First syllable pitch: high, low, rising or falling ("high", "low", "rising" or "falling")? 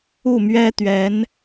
falling